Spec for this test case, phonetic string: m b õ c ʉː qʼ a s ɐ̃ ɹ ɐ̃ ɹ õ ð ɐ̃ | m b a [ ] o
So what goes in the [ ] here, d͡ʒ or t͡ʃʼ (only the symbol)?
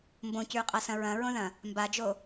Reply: d͡ʒ